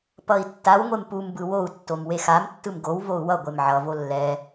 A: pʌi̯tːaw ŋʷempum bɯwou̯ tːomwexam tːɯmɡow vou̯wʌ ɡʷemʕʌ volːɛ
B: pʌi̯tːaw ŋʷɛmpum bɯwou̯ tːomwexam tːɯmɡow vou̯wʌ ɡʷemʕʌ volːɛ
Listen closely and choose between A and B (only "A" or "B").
A